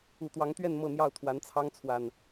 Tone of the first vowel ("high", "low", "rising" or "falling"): low